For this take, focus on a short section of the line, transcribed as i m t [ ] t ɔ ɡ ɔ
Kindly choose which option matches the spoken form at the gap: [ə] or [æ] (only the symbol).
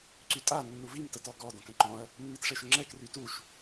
ə